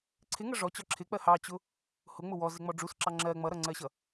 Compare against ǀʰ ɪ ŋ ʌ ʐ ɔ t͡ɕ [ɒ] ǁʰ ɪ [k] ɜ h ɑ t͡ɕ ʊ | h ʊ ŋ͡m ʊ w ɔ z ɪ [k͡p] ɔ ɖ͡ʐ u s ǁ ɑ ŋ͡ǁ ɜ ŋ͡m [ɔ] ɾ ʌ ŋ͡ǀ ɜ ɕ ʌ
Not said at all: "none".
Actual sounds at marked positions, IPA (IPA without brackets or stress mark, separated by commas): ɒ, k͡p, ŋ͡m, ʌ